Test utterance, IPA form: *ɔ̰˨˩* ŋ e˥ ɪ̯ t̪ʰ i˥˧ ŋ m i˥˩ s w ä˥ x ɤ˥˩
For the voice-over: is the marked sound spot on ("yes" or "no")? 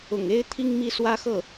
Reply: no